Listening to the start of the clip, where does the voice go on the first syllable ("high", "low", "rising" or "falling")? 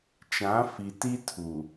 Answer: rising